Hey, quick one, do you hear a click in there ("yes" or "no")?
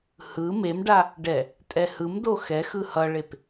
no